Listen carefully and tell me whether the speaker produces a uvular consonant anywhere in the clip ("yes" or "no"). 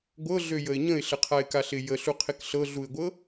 yes